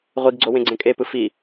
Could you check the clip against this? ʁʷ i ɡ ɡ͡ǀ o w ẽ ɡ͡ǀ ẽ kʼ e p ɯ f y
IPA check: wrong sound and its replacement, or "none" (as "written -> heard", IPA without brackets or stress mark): y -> i